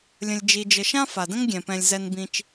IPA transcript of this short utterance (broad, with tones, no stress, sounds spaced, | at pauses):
lʲ ə̃˨ lʲ d͡ʒ i˨ d͡ʒ ə˨ ʃ ã˥ f a˩ d ə̃˥ ŋ ɡʲ ɛ̃˩ p ɛ̃˨ lʲ z ɛ˨ n b ĩ˨ t͡ʃ